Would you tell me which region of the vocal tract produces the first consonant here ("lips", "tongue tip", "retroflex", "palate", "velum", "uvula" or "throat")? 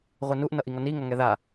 uvula